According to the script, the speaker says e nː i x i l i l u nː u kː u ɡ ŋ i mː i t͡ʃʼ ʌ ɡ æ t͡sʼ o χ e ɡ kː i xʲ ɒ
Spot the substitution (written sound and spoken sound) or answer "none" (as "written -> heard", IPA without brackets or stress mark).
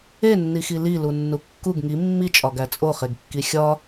ʌ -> ɒ